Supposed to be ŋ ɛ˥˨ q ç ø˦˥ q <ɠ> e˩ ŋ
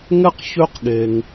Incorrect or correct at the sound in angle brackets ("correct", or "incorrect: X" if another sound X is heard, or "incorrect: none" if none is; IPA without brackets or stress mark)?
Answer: correct